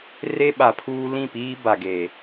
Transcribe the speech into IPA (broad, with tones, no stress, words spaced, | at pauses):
re˦ɓa˨pʰuː˦ lĩ˦˨piː˦ba˨ɡeː˨